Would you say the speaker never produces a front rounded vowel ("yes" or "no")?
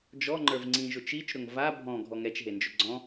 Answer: yes